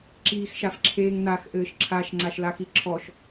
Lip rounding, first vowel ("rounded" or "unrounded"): unrounded